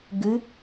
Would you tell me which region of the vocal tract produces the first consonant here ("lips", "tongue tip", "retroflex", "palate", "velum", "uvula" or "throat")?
velum